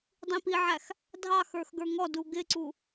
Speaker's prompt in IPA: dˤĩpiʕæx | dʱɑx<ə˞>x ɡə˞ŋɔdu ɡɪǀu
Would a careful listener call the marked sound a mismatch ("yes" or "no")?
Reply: no